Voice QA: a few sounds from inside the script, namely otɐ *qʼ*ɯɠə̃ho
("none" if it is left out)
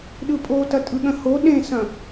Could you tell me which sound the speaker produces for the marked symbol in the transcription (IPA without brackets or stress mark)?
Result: tʼ